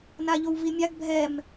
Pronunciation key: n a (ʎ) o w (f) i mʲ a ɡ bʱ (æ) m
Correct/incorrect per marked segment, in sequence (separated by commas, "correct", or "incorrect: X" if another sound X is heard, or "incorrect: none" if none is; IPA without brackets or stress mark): correct, incorrect: v, incorrect: ɛ